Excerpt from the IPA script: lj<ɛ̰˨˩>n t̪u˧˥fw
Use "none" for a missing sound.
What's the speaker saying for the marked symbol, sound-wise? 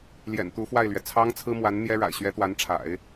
ɛ̰˨˩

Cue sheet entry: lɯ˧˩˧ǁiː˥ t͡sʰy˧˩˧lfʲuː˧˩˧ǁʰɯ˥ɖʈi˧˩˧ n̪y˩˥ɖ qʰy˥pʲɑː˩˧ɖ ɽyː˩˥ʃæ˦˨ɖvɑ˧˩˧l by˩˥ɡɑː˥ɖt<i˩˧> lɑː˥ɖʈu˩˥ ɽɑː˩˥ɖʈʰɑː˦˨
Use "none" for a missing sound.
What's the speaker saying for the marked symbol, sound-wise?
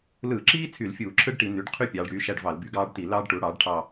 i˧˩˧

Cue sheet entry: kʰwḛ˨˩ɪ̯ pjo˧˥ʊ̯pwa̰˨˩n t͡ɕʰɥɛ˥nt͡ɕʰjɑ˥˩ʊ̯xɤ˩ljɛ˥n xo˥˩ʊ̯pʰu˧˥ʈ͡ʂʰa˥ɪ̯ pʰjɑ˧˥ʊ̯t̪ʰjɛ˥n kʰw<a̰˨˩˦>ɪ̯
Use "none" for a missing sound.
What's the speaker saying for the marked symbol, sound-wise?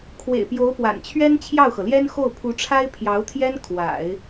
a̰˨˩˦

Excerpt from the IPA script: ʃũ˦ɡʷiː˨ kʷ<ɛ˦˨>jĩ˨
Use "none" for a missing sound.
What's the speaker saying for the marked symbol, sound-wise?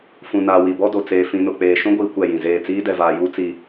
ɛ˦˨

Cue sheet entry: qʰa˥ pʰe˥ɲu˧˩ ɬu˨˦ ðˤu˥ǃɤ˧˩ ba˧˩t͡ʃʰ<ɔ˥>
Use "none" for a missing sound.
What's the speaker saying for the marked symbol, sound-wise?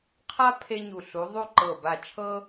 ɤ˥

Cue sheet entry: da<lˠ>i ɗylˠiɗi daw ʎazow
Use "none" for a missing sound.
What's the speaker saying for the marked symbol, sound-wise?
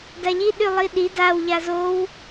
ʎ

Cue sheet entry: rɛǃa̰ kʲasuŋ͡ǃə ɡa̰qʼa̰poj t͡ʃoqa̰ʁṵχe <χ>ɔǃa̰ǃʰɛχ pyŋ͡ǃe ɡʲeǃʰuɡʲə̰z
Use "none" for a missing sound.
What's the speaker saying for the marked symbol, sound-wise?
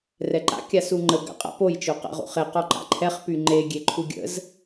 q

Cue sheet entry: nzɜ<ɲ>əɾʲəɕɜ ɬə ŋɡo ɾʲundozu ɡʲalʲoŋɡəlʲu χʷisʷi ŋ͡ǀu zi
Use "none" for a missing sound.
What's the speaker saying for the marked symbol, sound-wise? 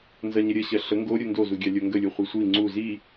ɲ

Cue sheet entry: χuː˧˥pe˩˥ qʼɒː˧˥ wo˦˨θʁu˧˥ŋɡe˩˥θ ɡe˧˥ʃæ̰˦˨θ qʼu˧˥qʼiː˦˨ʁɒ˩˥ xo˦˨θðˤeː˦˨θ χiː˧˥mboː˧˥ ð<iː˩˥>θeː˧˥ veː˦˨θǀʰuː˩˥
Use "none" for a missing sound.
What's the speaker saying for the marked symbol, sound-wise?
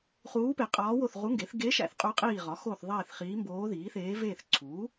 iː˩˥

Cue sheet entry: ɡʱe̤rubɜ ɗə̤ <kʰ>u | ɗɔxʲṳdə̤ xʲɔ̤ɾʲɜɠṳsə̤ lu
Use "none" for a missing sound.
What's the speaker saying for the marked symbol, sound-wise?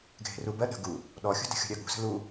ɡ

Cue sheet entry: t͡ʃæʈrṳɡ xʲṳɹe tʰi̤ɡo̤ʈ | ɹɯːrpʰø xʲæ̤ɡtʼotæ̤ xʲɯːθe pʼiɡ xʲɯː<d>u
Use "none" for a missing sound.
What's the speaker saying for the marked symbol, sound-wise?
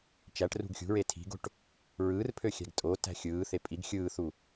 θ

